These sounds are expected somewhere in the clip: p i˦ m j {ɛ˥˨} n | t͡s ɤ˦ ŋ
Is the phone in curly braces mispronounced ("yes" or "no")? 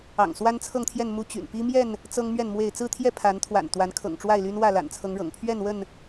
no